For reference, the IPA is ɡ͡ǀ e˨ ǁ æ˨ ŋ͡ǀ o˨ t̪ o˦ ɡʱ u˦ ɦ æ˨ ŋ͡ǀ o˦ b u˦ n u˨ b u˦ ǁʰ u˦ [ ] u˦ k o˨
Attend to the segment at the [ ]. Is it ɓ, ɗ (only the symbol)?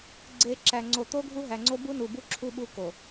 ɓ